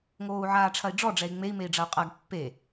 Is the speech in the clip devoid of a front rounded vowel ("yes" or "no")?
yes